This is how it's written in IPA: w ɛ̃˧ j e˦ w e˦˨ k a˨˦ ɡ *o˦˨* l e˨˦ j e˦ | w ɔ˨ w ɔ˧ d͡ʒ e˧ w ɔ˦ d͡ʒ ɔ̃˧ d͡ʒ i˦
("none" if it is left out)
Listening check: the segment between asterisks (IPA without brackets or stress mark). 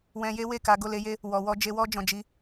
o˦˨